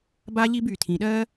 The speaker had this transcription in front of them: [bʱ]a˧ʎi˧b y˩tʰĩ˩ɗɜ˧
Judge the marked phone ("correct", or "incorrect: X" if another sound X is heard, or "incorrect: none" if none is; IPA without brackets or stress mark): incorrect: b